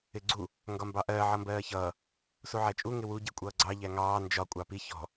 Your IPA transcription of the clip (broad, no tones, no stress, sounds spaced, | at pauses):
ɪ ɡ͡ǀ u | ŋ ɡ ɒ m b ɑ ʔ ɜː ʕ ʌ m b ɜː ç ʌː | s u ʕ æ t͡ʃʼ u ŋ ɪ w u ɟ i kʷʼ ʌː ɡ͡ǀ ɑ ʎ æ ŋ ɑː n d͡ʒ ɒ kʷʼ ɑ p i ç ɔ̤